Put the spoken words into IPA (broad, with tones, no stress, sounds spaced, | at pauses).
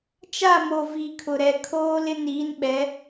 t͡ʃ a˦˨ m o˨ v i˨ kʰ ʊ˨ ɾ ɛ˨ kʰ oː˦ l ɪ˦ n iː˨˦ n ɓ ɛ˨˦